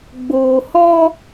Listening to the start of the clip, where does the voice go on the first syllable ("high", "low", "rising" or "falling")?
low